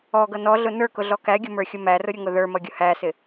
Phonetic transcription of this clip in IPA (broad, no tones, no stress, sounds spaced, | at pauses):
ɔ ɡ ʌ n ɔ ɮ ʊ n ə˞ k ʊ ɮ ɔ k æ ɡʲ ʊ m ə˞ xʲ ʊ m æ r ʊ ɾʲ ʊ ŋ ʊ ð ə˞ m ʌ ɡʲ ʊ h æ s ɪ